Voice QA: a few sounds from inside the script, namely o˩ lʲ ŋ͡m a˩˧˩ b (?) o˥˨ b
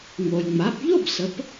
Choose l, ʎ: ʎ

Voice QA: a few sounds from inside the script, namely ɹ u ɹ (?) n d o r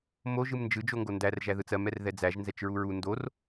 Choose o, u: u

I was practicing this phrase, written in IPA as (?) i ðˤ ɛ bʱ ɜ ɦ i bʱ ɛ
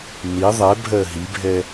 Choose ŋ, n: n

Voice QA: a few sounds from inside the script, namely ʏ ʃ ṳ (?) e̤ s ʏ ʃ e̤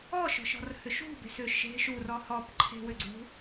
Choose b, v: b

